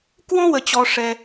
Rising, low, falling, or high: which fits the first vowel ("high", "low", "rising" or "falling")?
high